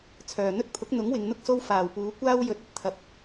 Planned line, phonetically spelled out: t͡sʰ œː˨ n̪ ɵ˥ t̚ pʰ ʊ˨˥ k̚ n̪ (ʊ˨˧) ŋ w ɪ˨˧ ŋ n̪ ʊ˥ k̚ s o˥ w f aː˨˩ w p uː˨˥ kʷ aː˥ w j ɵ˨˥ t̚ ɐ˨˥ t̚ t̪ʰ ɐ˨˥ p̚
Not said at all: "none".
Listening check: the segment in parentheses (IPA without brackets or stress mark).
ʊ˨˥